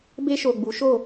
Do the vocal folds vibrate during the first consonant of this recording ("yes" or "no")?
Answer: yes